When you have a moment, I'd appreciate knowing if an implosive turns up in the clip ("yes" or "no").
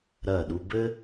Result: yes